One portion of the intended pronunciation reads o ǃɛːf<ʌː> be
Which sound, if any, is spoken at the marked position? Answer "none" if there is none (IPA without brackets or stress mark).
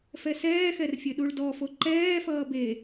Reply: ʌː